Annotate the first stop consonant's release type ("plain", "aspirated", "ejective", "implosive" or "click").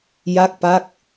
plain